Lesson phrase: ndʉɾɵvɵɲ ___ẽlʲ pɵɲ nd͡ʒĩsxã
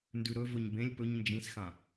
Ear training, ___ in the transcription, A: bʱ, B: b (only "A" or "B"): B